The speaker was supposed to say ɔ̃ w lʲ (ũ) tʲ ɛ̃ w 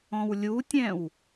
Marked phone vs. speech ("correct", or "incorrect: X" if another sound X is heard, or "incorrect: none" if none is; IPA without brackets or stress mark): incorrect: u